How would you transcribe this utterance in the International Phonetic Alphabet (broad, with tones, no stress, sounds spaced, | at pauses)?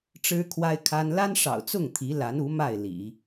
ʈ͡ʂ ɻ̩˥ kʰ w a˥ ɪ̯ kʰ a˥ n l a˥ n ʂ ɑ̰˨˩ ʊ̯ t͡s ʊ˥˩ ŋ t̪ʰ i˧˥ l a˧˥ n u˧˥ m a˥˩ ɪ̯ l ḭ˨˩˦